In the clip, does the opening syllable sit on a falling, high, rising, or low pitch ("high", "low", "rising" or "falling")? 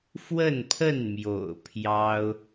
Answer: falling